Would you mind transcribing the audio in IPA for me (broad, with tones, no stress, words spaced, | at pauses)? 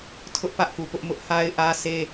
tʰʊ˦ʔpä˦ʔku˨ pʊ˦ʔmʊ˦ʔ ha˦ɪ̯ʔä˦sʰe˦